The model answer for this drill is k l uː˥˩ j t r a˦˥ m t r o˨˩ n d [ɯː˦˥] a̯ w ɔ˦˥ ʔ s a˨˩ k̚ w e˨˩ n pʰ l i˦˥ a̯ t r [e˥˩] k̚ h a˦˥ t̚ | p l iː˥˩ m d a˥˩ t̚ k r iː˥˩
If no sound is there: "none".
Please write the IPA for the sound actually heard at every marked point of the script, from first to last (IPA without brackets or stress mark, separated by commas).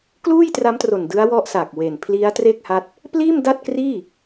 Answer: ɯ˦˥, e˥˩